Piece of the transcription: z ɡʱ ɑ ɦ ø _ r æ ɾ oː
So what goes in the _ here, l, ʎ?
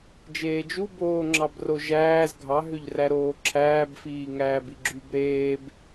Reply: ʎ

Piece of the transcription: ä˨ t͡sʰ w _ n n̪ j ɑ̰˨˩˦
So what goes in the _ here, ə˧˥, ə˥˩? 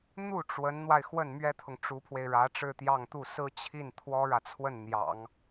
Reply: ə˥˩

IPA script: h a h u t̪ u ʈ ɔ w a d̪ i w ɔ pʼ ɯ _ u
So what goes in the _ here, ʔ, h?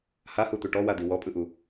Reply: ʔ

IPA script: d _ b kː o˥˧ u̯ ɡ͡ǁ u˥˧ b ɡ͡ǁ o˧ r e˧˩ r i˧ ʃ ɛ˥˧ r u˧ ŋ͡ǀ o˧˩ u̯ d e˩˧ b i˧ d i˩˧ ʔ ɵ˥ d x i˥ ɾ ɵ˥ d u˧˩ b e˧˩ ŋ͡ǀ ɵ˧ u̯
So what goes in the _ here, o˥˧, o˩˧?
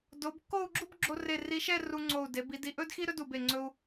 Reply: o˩˧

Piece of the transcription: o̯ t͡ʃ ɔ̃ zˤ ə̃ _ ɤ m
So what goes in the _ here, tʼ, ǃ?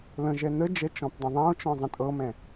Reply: tʼ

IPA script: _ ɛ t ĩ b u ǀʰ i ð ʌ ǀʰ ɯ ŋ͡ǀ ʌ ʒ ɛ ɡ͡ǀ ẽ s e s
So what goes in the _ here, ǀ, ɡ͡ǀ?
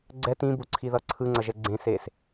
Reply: ɡ͡ǀ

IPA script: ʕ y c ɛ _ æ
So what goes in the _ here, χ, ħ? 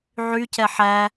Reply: ħ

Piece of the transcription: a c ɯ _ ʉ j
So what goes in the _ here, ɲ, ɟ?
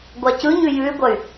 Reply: ɲ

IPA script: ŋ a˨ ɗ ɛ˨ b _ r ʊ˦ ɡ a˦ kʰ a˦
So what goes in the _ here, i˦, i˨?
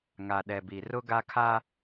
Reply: i˨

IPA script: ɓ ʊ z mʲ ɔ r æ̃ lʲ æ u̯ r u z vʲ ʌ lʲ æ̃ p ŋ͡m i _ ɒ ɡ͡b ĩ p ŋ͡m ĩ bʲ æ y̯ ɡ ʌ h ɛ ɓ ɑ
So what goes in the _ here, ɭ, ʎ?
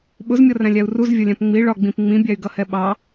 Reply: ɭ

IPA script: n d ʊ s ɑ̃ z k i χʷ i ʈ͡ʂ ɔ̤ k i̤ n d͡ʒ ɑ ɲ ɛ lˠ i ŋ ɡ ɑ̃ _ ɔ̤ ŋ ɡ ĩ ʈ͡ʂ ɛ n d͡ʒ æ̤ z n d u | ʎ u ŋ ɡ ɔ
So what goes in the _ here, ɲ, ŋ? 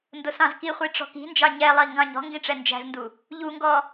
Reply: ɲ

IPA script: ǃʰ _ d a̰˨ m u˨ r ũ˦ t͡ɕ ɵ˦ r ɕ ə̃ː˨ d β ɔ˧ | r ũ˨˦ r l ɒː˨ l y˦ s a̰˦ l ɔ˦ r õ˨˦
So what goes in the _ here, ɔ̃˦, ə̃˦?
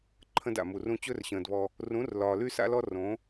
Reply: ə̃˦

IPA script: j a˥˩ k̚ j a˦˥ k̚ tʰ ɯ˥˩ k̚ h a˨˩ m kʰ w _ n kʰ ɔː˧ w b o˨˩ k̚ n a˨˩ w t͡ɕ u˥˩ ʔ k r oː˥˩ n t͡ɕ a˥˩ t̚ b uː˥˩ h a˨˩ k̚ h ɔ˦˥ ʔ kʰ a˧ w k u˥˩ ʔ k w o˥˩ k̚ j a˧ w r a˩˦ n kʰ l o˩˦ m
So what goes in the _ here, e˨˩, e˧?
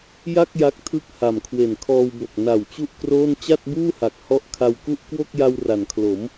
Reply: e˨˩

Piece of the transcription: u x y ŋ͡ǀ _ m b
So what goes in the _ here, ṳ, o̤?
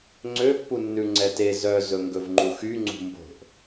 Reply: ṳ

